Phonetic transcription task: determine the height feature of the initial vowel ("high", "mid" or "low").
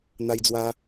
low